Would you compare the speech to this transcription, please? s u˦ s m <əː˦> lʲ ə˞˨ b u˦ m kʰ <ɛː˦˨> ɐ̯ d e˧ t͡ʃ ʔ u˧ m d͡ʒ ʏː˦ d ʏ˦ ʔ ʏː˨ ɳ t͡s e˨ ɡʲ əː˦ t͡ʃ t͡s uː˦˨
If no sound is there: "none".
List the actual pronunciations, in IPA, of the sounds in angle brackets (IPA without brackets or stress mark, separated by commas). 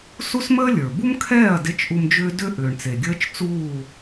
əː˦, ɛː˦˨